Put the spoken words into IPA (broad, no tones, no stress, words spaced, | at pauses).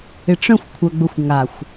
ɪʈ͡ʂœ̃xʷ kʷʰœɡ͡bʊxʷŋaxʷ